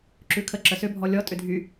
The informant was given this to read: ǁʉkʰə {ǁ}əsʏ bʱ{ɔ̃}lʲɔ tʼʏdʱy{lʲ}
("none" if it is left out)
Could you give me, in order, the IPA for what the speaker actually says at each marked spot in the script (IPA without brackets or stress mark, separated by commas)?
ǁ, ɔ, none